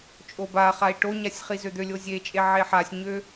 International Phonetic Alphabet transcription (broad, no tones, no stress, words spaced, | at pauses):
t͡ʃʼobaχai̯ ʈoɲasʲ χizød̪ølʲo zʲet͡ʃʼe ʕeħasʲɲø